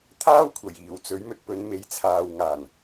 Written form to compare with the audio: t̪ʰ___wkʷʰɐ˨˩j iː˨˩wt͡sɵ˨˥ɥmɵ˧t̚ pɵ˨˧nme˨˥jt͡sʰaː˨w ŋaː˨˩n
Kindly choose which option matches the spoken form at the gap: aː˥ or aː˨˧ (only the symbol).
aː˥